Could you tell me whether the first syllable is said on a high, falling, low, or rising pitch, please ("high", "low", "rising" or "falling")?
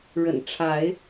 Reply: low